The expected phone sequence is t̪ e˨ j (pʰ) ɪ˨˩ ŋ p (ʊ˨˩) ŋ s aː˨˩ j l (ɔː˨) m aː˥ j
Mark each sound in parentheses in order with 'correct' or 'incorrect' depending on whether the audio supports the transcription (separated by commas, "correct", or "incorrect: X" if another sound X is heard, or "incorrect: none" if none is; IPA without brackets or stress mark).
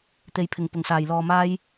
correct, correct, correct